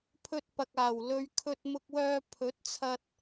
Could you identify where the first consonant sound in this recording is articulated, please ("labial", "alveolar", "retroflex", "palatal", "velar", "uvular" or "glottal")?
labial